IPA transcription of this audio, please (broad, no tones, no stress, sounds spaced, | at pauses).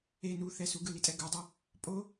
e n u θ ɛ s u ɡ ɯ l i tʼ ɛ ɡ u dˤ ɯ | pʼ o